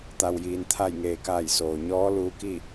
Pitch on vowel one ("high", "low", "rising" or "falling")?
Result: low